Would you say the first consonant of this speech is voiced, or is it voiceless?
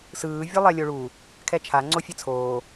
voiceless